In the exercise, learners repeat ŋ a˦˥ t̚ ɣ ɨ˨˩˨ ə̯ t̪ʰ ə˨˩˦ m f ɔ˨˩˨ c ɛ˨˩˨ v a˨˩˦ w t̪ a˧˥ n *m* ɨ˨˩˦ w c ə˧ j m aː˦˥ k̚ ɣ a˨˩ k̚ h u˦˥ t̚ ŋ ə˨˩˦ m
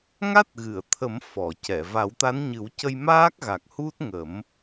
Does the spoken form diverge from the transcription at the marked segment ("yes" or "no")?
yes